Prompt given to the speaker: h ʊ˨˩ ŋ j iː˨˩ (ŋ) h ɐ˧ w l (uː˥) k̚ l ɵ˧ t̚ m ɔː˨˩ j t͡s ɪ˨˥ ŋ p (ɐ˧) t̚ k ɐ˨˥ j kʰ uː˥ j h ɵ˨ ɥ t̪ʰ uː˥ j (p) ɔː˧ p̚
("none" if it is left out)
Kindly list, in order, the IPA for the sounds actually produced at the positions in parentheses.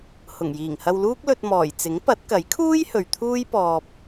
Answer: ŋ, uː˥, ɐ˨˥, p

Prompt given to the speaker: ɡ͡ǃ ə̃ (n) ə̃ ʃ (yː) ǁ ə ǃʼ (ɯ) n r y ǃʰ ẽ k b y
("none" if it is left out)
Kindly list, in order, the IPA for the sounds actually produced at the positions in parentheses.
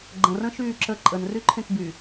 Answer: r, yː, ə

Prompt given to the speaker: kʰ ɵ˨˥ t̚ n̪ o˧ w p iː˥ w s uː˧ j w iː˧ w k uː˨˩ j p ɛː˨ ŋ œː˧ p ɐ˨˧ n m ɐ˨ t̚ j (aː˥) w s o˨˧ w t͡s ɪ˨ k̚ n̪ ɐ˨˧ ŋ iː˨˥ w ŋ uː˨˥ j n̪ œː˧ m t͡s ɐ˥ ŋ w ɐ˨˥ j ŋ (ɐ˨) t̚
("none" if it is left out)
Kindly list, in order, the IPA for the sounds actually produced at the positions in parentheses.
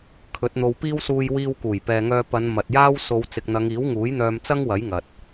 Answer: aː˥, ɐ˨

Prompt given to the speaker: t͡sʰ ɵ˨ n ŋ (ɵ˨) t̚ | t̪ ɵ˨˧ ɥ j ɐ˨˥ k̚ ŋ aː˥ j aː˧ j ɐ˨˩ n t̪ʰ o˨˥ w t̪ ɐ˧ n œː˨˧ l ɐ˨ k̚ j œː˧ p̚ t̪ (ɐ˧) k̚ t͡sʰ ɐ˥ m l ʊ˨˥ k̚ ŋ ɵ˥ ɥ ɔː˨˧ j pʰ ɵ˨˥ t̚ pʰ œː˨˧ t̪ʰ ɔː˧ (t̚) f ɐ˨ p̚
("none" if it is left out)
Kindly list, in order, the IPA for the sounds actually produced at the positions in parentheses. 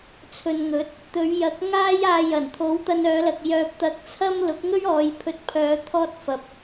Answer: ɵ˨˥, ɐ˧, t̚

